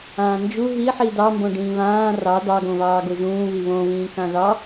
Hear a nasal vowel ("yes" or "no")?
yes